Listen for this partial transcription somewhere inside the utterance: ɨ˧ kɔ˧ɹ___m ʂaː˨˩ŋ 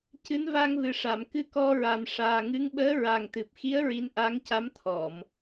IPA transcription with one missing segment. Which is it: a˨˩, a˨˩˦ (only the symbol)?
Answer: a˨˩